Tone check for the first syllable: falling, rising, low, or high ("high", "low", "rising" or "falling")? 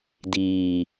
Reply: low